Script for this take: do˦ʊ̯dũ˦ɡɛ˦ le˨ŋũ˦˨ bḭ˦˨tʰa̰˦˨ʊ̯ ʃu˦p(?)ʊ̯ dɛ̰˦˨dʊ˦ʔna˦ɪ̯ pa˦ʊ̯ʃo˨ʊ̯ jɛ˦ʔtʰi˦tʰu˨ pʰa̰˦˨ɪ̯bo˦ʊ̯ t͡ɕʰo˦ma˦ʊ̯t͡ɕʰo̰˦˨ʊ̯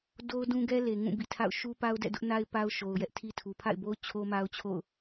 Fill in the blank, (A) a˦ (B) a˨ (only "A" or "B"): A